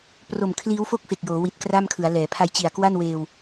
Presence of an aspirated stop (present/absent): present